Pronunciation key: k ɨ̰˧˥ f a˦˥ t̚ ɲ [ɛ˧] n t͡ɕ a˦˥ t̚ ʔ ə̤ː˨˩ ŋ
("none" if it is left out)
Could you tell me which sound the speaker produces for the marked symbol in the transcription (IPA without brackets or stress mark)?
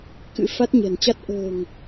ɛ̤˨˩